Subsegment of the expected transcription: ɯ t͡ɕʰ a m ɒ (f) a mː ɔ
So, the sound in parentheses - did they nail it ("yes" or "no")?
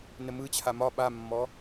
no